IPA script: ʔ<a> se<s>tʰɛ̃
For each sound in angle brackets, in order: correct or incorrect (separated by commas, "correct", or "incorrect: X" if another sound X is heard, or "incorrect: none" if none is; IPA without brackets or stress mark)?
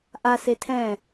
correct, incorrect: none